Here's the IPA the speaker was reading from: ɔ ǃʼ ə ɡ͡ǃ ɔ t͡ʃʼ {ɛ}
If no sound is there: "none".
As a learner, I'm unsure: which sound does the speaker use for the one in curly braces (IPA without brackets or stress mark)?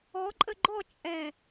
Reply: ɛ